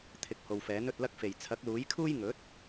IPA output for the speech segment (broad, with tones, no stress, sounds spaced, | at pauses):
t̪ʰ ɪ˨ k̚ h o˨ w f ɛː˨˥ n ɵ˧ t̚ l ɐ˥ k̚ f e˨˩ j t͡sʰ ɐ˨˥ k̚ l uː˨˥ j kʰ uː˥ j ŋ ɵ˨˥ t̚